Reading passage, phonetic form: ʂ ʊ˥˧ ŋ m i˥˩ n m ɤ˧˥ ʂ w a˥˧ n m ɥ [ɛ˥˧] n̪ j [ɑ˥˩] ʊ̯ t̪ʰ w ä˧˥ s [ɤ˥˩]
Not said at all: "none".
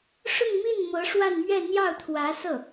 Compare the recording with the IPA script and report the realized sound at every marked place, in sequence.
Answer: ɛ˥˧, ɑ˥˩, ɤ˥˩

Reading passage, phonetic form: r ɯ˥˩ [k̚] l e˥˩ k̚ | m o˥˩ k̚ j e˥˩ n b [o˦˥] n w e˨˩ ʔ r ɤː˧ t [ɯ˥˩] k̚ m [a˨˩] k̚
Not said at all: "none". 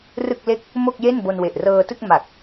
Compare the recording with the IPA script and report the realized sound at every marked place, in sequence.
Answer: k̚, o˧, ɯ˥˩, a˨˩

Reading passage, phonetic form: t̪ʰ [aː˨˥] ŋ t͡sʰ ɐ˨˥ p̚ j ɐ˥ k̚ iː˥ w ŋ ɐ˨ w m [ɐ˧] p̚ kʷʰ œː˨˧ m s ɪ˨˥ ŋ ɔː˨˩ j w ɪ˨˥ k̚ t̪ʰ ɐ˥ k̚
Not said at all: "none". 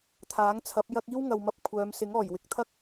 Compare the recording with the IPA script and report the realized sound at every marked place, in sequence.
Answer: aː˨˥, ɐ˧

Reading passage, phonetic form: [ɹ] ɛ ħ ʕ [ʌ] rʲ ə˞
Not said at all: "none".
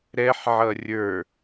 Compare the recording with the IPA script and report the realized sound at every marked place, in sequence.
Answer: ɾ, ʌ

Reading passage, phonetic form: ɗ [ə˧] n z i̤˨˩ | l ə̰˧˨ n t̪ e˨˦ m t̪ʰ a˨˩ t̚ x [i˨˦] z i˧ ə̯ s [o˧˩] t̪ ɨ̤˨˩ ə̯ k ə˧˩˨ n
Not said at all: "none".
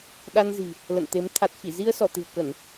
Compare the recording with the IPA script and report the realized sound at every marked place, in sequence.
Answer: a˧, i˧˩, ɔ˧˩

